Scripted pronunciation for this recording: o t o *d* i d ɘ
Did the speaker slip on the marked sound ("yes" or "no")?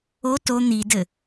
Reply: yes